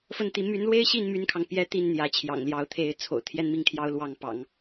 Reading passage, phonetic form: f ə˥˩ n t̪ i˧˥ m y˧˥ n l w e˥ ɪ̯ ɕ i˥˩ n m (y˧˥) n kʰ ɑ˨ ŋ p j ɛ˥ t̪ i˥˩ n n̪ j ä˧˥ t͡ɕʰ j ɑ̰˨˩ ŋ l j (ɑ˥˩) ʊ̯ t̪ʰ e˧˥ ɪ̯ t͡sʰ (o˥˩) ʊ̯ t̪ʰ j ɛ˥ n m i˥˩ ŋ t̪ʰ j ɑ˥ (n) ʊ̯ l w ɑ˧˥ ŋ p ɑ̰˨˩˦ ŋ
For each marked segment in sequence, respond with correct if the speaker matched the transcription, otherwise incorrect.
incorrect, incorrect, incorrect, incorrect

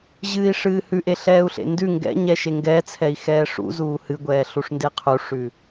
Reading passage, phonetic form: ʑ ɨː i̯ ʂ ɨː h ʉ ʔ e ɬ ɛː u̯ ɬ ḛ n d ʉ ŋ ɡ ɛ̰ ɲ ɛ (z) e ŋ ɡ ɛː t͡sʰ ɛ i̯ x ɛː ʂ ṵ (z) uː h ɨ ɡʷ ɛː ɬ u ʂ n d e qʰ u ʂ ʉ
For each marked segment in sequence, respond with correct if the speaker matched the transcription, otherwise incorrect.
incorrect, correct

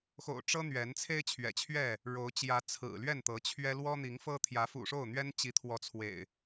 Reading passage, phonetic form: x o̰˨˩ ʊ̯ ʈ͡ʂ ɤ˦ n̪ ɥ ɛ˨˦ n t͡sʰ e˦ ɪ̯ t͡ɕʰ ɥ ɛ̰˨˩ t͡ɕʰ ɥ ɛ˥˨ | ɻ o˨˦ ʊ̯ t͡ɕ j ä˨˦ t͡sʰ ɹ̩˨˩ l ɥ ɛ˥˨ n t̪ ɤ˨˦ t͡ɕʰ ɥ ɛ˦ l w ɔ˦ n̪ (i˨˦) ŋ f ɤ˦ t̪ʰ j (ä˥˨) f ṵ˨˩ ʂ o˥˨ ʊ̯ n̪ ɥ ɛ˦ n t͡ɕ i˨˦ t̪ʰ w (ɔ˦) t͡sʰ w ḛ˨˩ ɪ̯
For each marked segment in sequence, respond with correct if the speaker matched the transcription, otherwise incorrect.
correct, incorrect, incorrect

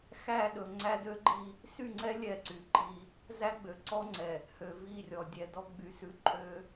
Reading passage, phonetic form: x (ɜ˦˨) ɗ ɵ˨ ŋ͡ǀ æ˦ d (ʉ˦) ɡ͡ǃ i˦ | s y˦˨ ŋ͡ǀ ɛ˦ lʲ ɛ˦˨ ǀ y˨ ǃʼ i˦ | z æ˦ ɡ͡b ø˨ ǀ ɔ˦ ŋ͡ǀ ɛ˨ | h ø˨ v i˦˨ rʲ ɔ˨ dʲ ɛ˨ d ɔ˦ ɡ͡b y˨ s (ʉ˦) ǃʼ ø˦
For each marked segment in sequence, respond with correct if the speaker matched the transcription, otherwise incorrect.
incorrect, incorrect, correct

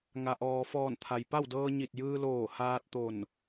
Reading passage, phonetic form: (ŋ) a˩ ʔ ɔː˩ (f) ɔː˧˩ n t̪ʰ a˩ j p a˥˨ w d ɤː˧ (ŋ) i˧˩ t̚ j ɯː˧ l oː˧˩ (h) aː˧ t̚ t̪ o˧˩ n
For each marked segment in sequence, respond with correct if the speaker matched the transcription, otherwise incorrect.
correct, correct, incorrect, correct

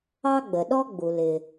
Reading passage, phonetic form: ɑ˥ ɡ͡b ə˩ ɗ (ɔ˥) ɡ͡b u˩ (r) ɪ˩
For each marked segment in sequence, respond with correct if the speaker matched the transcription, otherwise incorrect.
correct, incorrect

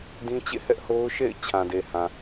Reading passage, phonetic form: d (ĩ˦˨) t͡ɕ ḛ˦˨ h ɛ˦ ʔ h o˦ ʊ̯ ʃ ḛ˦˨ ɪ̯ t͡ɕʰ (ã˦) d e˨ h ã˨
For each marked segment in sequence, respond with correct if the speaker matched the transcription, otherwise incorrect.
incorrect, incorrect

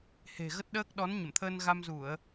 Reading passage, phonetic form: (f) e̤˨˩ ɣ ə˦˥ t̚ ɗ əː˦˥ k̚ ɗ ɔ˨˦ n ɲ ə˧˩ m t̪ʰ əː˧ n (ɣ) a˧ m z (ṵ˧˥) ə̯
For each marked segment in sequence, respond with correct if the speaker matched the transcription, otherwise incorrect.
incorrect, correct, incorrect

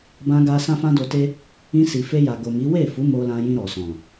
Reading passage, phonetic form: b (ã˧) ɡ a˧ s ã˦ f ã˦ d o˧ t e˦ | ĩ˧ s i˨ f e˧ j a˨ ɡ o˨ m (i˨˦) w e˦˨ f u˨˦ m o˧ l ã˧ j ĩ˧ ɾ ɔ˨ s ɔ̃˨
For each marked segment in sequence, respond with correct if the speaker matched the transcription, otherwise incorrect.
correct, correct

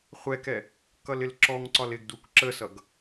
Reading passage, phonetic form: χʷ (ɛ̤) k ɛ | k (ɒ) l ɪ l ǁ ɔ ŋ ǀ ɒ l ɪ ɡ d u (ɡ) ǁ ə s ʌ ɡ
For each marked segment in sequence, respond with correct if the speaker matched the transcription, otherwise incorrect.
incorrect, incorrect, incorrect

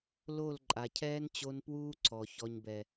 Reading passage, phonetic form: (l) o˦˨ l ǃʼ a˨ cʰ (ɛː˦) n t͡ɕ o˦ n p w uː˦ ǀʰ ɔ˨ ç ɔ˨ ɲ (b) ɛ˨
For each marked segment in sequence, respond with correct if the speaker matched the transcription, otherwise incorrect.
correct, correct, correct

